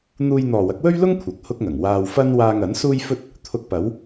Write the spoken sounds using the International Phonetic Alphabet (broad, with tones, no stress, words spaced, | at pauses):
n̪uː˧jn̪ɔː˨wɐ˨˥k̚ wɵ˥ɥlʊ˥ŋ kʷʰɐ˨k̚hʊ˥k̚ŋɐ˨˩ŋ waː˧w fɐ˥n waː˧ŋɐ˨˥n suː˥jfɵ˥t̚ | t̪ʰʊ˧k̚pɐ˨˥w